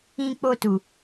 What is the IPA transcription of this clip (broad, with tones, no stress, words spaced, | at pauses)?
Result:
ĩ˧k͡po˧tu˨